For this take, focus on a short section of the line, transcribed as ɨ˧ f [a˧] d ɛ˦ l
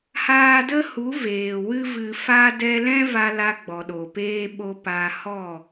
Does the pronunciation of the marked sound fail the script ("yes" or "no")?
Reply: yes